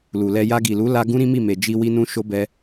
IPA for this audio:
l u˨ l ɛ˧ j a˧ ɡ i˨ l u˨˦ l a˧ ɡ ũ˦ ɾ ĩ˦ m i˦˨ m e˨ d͡ʒ i˧ w i˧ n ũ˧ ʃ o˦ b ɛ˧

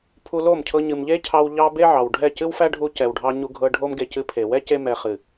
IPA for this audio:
pʰ u˧ l o˦˨ m cʰ ɤ˧ ɲ ɨ˨ m ʎ e˦ cʰ ɑ˧ w ʎ ɑ˧ b e˦ ʕ ɑ˨ w ɖʱ ɛ˦˨ c ɨ˦ w f æ˦ ɖʱ u˧ c ɛ˨ w ɖʱ ɑ˧ ɲ u˧ ɡʱ ɤ˧ ɖʱ o˦ m ɡ e˧ c ɨ˧ pʰ e˨ w ɛ˦ c e˧ m ɛ˨ χ ɨ˨

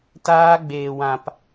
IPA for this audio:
t aː˦ ɡ͡b eː˧ w ã˧ p

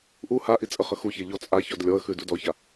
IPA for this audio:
ʔ u h a ʔ i t͡sʼ ə χ ə x u ç ɛ ʎ ɔ t͡sʼ a ç ɔ d lʲ ɔ ə̯ x ʉ d u d ɔ ç a

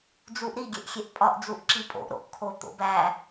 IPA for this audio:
d͡z u ʔ ɾ i ɡʲ e ʔ xʲ e ʔ pʼ ɒ ʔ d͡z u ʔ ǁ i pʼ o̰ ʔ ɾ o̰ ʔ kʰ o t̪ o̰ b æ

